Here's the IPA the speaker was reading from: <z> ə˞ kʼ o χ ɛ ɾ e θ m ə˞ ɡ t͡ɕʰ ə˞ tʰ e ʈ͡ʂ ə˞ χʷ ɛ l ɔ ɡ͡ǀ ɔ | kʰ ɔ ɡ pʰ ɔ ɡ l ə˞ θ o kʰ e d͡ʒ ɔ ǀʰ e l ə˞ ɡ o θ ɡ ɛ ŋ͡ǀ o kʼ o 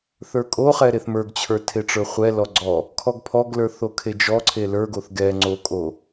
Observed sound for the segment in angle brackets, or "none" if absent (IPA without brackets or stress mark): θ